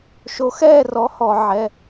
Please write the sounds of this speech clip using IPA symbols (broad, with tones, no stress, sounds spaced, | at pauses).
ʃ o˨˥ x ɛː˥˨ r ɔ˨˥ h ɔ˧˩˧ ʕ ɛ˩˧˩